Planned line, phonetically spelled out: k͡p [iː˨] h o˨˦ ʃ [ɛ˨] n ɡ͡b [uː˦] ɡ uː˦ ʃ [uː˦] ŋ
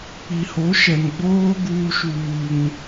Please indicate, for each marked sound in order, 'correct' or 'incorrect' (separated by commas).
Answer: incorrect, correct, incorrect, correct